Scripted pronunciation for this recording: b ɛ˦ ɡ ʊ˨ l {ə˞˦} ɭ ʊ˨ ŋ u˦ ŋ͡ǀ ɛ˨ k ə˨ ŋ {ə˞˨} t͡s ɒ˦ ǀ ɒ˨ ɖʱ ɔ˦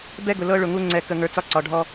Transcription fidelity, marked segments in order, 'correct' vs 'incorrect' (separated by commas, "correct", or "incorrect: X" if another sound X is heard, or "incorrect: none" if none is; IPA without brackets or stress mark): incorrect: ɤ˦, correct